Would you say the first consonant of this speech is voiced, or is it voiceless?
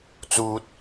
voiceless